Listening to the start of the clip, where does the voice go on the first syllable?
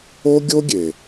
high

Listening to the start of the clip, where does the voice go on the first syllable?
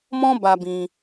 high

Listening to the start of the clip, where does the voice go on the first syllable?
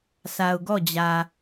low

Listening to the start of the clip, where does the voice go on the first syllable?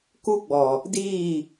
high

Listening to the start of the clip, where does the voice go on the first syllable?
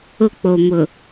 high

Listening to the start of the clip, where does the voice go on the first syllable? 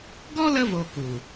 high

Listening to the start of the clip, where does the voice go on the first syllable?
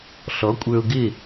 rising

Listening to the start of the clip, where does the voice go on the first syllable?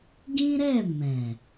high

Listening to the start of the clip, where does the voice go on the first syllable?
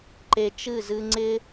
low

